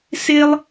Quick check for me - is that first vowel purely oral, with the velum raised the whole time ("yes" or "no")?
yes